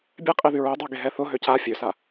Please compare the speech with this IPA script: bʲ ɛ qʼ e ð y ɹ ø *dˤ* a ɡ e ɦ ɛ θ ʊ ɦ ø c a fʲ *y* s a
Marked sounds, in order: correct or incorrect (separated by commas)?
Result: correct, incorrect